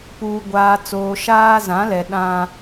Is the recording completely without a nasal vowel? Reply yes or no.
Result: no